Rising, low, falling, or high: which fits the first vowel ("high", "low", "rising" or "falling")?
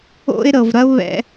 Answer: high